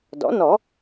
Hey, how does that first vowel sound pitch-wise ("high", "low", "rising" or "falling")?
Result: rising